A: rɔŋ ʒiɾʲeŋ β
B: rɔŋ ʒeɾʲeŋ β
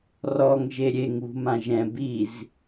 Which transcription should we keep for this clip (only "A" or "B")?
B